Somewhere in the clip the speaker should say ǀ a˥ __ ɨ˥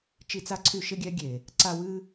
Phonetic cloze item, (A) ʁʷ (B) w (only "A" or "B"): B